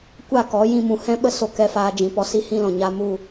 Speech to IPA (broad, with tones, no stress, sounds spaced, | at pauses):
kʷ a˦˨ k ɔ˨˦ j ĩ˧ m ũ˨ h ɛ̃˦ ɓ ə˦ s o˧ k ɛ˧ f aː˧ d͡ʒ ĩ˨ p ɔ˧ s i˦ h ĩ˦ l ɔ̃˨ ɲ a˧ m u˦˨